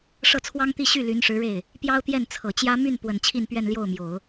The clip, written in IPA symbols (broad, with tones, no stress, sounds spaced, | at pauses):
ʂ ɤ˥˩ t͡sʰ w ɑ˥ ŋ t̪ i˥˧ ɕ y˥˩ l y˧˥ n ʂ ɻ̩˧˥ ɻ e˥˩ ɪ̯ | p j ɑ˥ ʊ̯ t̪ j ɛ˥˩ n t͡sʰ ɤ˨˩ t͡ɕ j ä˥ m y˥˩ n p w ə˨˩ n t͡ɕʰ i˥˧ n p ɥ ɛ˥˧ n l j o˥˩ ʊ̯ m j o˨˩˦ ʊ̯